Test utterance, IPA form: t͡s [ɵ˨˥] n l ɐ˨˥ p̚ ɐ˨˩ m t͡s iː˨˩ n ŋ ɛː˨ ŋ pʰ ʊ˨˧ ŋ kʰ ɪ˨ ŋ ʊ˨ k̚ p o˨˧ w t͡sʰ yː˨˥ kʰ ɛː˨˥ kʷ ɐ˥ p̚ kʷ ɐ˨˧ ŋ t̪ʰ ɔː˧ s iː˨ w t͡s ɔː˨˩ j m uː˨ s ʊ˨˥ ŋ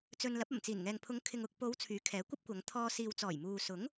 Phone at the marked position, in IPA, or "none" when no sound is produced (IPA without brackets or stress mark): ɵ˧